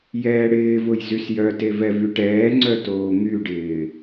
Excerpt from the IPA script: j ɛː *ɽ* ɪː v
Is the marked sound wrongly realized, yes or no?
no